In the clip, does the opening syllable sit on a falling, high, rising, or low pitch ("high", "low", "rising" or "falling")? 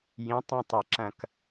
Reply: rising